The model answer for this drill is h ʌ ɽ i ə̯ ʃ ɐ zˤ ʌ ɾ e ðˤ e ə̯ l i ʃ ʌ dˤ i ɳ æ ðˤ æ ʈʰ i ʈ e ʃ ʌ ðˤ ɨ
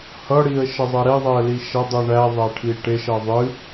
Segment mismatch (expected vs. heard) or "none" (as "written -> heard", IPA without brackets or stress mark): none